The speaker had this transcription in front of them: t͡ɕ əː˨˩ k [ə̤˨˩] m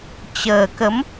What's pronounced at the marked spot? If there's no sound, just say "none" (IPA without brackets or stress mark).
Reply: ə˨˦